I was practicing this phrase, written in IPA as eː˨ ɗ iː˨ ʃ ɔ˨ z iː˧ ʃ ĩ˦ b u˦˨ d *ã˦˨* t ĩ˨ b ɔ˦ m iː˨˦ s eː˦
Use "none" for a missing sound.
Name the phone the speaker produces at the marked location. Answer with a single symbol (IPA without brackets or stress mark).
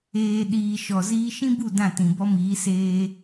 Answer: ã˦˨